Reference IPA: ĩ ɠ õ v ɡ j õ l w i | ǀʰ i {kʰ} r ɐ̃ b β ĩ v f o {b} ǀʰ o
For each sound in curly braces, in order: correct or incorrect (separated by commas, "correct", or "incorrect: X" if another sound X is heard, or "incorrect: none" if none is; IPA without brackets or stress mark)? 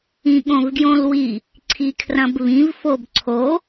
correct, correct